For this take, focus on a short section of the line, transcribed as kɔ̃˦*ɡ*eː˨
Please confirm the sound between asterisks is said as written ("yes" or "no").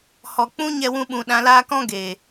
yes